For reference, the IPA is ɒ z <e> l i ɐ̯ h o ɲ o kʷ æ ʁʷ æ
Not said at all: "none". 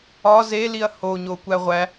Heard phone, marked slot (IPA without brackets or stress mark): e